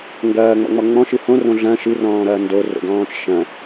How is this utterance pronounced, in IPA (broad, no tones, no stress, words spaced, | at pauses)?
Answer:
ŋɡɐːŋ͡mɔ̰ŋ͡mɔ ŋ͡mɔ̃ʃɨ hõrõ ɮɐ̃ ʃɨrɔ̃ːɾɐː ndoro̰ɡɔ̃ːt͡ʃ ʃɐ̃